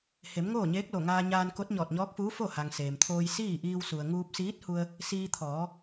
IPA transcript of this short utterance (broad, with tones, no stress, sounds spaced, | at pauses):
h e˩˧ m ŋ oː˥˨ ɲ eː˧˥ k̚ l o˧˩ ŋ aː˧ ɲ aː˧ n k o˧˥ t̚ ɲ ɔː˧˩ t̚ ɲ ɔː˧˥ k̚ f uː˧˥ f o˥˨ h a˩ ŋ s eː˩ m t̪ʰ oː˧ j s iː˥˨ ʔ iː˧ w s u˩ ə̯ ŋ uː˧ p̚ s iː˧˥ t̚ h u˧ ə̯ | s iː˧ t̪ʰ ɔː˩˧